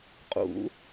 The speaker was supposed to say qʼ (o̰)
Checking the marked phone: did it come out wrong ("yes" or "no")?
yes